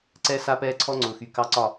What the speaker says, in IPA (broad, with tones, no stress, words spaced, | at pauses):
ǀɛ˦ sa˦pɛː˦ǀʰɔ˦ ŋ͡ǀʊː˨xy˨ kɑ˦ǀɒ˦˨